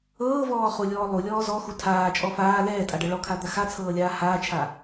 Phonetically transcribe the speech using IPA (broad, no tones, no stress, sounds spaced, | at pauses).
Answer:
ɤː v ɔː χ u lʲ ɔː lˠ u lʲ ɔː z ɔ x u tʰ aː t͡ʃʼ ɔ f aː l ɛː tʼ a ɖ ɤ ɭ ɔ kʰ a d̪ a x a t͡sʰ ɤː lʲ aː h aː t͡ʃʰ a